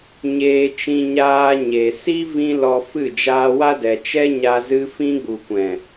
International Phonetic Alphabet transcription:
ɲ eː˧ t͡ʃ ĩ˧ ɲ aː˧ ɲ e˨ s i˦ v ĩ˦ l ɔ˧ f ɨ˦˨ d͡ʒ aː˧ w a˦ d ɛ˨ t͡ʃ ɛ˦ ɲ a˧ z ɨ˧ f ĩ˧ ɡ͡b u˨ kʷ ɛ̃˨

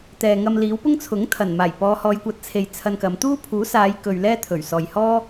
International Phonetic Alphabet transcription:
t̪ ɛː˨ ŋ ɐ˧ m l iː˨˥ w p ʊ˥ ŋ t͡sʰ ʊ˨˥ ŋ t̪ʰ ɐ˨˩ n m aː˨˩ j p ɔː˨˧ h ɔː˨˧ j kʷ ɐ˨˥ t̚ t͡sʰ e˨ j t͡sʰ ɐ˧ n k ɐ˨˧ m t̪ uː˥ pʰ uː˨˥ s aː˨˧ j k ɵ˨ ɥ l ɛː˥ t̪ʰ ɵ˨˩ ɥ s ɔː˨ j h ɔː˥

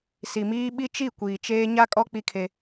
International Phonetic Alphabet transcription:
s i˨ m iː˦ ɓ i˦ t͡ʃ i˦˨ kʷ iː˨ t͡ʃ eː˦ ɲ a˦ kʼ ɔ˦ k͡p i˦ kʰ e˦

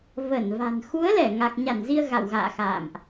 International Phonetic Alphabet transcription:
v ə˧˩ n v a̤˨˩ n x u˨˦ ə̯ l ɛ˧˩ ŋ a˨˩ k̚ ɲ a˧˩ n z i˧ ə̯ ɣ a̰˧˨ w ɣ a̰ː˧˨ x a̰ː˧˨ m ʔ

